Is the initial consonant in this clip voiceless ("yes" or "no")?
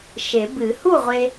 yes